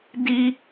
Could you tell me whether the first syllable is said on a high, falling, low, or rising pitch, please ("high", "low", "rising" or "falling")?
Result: high